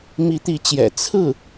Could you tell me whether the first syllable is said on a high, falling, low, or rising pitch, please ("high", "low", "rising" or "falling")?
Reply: rising